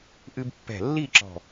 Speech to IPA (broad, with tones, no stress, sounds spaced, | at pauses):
ʔ ɨ˧ b pː ɛ̤˧˩ lː i˥˧ ǁ ɔ̤˧˩